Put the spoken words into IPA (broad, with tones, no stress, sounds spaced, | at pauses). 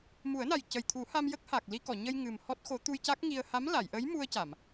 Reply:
m u˨˩˦ ə̯ n a˨˩ j c ə˨˩ j t̪ʰ u˨˩˦ h a˧ m j ə˦˥ k̚ h a˨˩ k̚ l i˧ k ɔ˨˩˨ ɲ ə˧ j ŋ ɨ˨˩ m h ɔ˦˥ t̚ x o˧˥ t̪ u˧ j c a˦˥ k̚ ŋ i˧ ə̯ h a˧˥ m l a˨˩˨ j ʔ ə˧˥ j m u˧ ə̯ c a˨˩˨ m